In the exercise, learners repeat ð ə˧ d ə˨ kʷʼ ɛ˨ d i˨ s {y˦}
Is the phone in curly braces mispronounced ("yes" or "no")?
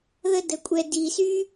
no